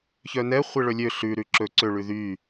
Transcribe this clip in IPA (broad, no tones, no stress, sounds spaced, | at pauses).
ç œ n ɛ χʷ e ɭ ɵ lʲ ø ɬ ʉ ɾ ʉ ǁ ɵ ǀ ø ɭ ʉ ð y